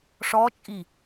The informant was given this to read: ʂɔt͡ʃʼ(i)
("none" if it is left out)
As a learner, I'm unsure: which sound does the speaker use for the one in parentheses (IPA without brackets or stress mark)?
i